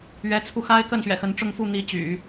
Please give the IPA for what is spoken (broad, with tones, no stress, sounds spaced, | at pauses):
ɥ ɛ˧˥ t͡sʰ u˧ x a˥ ɪ̯ k ə˥˩ n ɕ ɥ ɛ̰˨˩ x ə˧˥ n ʈ͡ʂ ʊ˥˧ ŋ f u˥˩ n̪ i˧˥ t͡ɕ y̰˨˩˦